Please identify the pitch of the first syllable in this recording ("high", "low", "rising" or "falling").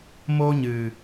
high